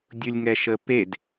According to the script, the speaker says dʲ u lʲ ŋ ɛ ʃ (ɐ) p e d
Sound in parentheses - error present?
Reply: yes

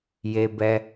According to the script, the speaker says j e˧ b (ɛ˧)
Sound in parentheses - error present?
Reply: no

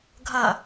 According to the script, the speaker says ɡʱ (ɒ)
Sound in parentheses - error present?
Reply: yes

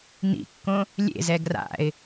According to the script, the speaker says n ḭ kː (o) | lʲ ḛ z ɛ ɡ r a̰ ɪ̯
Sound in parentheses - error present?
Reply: yes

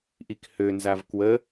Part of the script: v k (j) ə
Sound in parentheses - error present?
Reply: yes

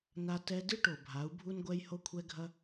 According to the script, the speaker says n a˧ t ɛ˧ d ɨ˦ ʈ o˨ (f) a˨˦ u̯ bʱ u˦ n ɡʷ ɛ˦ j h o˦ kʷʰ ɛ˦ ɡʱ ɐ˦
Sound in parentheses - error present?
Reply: yes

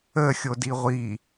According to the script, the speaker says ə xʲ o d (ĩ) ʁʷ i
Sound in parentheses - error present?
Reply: yes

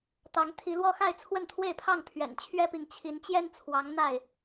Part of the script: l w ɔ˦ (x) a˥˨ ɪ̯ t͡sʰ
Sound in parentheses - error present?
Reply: no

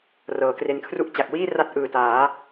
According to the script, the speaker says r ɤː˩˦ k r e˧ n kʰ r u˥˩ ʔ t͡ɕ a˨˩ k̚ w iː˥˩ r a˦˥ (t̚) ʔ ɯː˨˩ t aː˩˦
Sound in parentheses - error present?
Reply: no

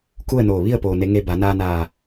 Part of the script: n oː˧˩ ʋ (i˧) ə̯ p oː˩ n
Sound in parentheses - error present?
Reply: yes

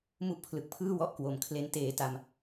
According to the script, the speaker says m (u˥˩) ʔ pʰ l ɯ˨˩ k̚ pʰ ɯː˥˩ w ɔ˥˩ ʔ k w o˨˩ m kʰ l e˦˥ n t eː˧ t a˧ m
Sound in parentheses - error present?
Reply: no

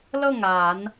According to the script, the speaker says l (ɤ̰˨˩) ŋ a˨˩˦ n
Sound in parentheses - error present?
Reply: yes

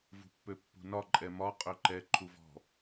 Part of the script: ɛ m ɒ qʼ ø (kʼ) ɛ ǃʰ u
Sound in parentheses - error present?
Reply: yes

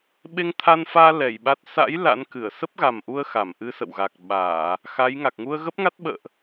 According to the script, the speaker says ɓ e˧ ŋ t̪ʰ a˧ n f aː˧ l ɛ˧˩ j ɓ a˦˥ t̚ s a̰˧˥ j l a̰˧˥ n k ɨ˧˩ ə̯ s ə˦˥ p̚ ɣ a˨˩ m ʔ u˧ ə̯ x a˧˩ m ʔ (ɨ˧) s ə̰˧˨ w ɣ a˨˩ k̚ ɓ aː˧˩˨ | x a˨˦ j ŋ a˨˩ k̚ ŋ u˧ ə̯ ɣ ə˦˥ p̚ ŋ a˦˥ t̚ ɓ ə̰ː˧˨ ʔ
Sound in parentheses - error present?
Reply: no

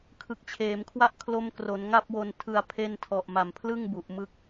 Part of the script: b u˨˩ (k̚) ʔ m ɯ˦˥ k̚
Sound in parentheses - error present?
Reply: yes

